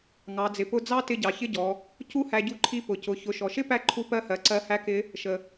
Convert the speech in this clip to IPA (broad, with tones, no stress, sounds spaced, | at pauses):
ŋ ɑ˩˧ d͡z ɪ˩˧ p ʊ˧˥ d͡z ɑ˥ t ɪ˧ ɟ ɑ˩ ç ɪ˥ ɟ ɔ˩˧ | c u˥ h æ˧ ɟ u˧˥ ǃʰ i˧˥ p ʊ˩ c ʊ˩˧ ç ʊ˩˧ ʃ ɔ˩ ʃ ɪ˥ p æ˥ ǃʰ u˧˥ p ɜ˧˥ h ɜ˩˧ ǀ ɜ˧ h æ˧˥ k ɪ˧˥ | ʃ ə˩